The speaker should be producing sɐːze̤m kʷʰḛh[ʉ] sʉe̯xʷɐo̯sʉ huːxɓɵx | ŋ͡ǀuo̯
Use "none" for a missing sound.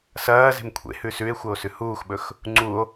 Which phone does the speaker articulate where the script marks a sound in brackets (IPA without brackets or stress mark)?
ʉ